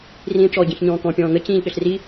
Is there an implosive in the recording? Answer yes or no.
yes